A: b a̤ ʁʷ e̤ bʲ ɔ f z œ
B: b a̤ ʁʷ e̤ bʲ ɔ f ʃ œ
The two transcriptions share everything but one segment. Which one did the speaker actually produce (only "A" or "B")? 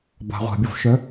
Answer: B